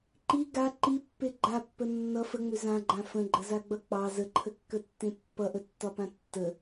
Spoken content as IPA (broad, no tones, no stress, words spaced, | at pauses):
ǃi ɡa ǃipːe ɡ͡ǃapːə nːʌ fəŋ͡mʏ zãɡ͡ǃã fə̃ɡ͡ǃəzaɡ͡bʌ k͡pɑ zəǃʰəkːətːẽ pːʌʔətːɒpã tːə